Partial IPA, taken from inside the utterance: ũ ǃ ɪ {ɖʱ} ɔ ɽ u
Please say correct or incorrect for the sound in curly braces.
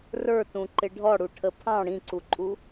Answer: correct